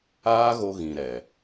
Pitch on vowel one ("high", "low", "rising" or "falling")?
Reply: high